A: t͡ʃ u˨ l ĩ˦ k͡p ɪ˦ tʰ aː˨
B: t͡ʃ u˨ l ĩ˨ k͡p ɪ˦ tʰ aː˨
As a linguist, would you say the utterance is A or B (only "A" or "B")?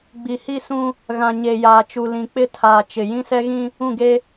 B